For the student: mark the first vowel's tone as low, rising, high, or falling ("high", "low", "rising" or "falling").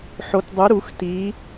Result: rising